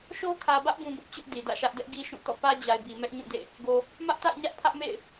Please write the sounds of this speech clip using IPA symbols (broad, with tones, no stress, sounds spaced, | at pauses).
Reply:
ʃ o˦ kʰ ä˨ b ä˦ ʔ b ũ˨ b ʊ˦ ʔ t͡ɕ ʊ˦ ʔ d i˨ d ä̰˦˨ ʃ ä˦ ʔ d ɛ˦ ʔ ɡ i˦ ʃ ũ˦˨ t ɔ̰˦˨ p ä˦ d͡ʑ a˨ ɪ̯ b i˨ m ɛ˦ ʔ ɲ ũ˦˨ d ḛ˦˨ | ɡ o˨ | m ä˦ ʔ t a̰˦˨ ɪ̯ ɲ ä˦ ʔ pʰ ä˦ ʔ m ḛ˦˨ ɪ̯